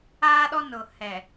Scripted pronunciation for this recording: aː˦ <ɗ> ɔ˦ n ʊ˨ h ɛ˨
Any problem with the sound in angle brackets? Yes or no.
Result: no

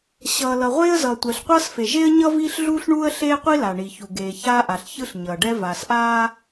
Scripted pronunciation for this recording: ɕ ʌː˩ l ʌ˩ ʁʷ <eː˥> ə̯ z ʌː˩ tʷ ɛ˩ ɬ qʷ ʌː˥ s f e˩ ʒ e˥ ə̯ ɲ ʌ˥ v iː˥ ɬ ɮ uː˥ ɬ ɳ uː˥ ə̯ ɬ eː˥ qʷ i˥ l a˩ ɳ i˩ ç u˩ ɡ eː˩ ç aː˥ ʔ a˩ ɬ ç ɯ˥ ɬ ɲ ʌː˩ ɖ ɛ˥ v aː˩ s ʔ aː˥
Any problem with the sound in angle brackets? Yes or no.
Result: no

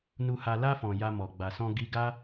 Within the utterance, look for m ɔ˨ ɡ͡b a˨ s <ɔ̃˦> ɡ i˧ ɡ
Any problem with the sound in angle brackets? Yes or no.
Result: yes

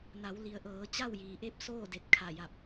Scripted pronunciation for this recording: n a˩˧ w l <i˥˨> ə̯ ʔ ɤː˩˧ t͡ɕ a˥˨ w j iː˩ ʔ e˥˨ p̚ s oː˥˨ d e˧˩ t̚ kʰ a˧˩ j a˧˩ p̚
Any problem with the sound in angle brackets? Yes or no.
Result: yes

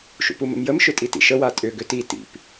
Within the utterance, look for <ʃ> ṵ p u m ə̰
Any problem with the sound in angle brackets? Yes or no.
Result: no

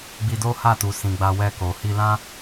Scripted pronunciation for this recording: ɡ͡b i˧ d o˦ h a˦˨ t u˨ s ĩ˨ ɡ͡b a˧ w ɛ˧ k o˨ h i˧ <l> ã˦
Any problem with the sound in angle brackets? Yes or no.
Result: no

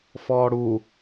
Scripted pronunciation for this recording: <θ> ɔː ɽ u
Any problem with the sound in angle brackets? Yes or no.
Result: yes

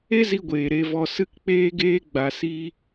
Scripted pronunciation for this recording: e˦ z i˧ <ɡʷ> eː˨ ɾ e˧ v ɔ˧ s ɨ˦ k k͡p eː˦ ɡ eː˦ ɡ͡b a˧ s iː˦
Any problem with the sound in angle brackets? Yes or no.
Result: no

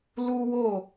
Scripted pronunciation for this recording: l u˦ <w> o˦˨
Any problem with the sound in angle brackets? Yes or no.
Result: no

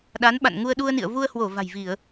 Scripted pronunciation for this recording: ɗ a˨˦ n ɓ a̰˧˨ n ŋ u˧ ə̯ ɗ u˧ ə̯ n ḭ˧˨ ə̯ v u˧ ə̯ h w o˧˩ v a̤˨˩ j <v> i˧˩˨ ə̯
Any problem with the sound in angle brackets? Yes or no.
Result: no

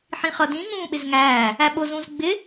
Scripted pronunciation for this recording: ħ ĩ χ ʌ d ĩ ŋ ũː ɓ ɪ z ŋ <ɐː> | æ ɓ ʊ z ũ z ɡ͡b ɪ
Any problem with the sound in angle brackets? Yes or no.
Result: yes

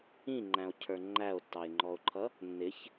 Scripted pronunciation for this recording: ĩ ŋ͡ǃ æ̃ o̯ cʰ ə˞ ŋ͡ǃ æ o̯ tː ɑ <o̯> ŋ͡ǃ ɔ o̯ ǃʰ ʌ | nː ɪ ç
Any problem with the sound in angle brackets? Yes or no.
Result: yes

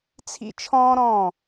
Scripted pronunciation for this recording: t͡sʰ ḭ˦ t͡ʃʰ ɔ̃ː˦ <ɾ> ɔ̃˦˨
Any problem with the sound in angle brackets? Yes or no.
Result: no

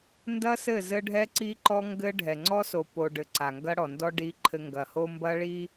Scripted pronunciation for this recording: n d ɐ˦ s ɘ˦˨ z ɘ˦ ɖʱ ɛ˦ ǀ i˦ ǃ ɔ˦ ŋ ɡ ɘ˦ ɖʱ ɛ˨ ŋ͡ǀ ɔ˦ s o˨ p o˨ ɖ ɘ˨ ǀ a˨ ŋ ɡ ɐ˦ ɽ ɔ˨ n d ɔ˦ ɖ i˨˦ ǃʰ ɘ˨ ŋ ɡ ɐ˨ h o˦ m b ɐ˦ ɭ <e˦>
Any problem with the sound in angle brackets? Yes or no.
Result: yes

